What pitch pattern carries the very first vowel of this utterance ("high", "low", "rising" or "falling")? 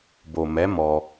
low